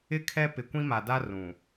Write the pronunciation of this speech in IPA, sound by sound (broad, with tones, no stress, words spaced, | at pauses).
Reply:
ɪ˦kʰɛ˦ pɪ˨kʷĩ˦ma˨da˦ rũ˨